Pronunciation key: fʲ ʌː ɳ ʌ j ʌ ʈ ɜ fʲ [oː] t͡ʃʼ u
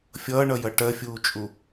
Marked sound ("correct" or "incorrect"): incorrect